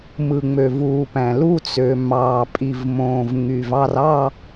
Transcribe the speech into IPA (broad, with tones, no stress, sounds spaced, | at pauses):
m ɯ˩ ŋ͡m ø˩ v uː˩ p æ̃˩ l u˦˨ t͡s ø˩ m ɑː˩ pʼ i˩ v m õː˩ v ŋ y˩ v ɑ˦˨ r ɑ˦˨